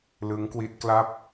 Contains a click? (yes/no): no